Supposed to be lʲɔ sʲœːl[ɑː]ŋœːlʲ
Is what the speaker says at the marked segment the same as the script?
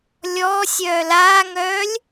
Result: no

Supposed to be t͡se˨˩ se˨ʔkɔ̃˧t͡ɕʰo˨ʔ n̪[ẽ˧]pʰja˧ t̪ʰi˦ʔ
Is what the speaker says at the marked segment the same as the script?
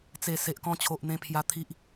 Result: yes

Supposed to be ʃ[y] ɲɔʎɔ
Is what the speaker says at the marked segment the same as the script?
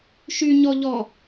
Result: yes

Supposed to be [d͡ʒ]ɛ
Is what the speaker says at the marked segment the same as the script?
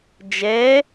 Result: yes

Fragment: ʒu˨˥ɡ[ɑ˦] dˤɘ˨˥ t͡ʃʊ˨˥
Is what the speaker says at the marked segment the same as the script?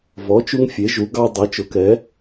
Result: yes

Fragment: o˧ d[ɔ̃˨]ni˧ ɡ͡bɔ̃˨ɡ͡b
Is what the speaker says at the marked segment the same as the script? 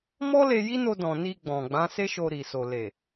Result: yes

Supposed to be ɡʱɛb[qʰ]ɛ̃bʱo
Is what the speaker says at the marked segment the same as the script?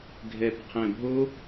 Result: yes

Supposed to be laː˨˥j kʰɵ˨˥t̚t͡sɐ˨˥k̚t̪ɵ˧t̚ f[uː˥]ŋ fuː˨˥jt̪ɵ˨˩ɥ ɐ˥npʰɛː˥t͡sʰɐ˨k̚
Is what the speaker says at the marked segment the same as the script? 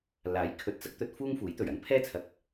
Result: yes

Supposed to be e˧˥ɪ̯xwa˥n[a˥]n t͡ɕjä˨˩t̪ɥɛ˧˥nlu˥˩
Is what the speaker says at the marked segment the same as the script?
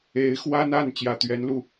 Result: no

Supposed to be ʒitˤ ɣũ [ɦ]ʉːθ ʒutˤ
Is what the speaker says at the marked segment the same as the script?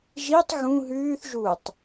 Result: yes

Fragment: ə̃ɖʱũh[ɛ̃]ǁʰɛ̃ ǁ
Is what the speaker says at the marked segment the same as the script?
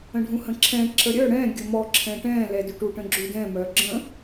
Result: no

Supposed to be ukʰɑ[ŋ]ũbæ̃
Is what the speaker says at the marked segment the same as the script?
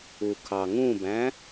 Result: yes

